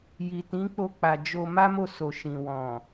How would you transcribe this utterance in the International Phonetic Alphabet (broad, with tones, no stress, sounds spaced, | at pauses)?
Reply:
j i˨ t ĩ˨˦ k͡p o˧ k͡p a˨ d͡ʒ o˧ m a˦ m o˦˨ s o˨ ʃ ĩ˨ w ɔ̃˨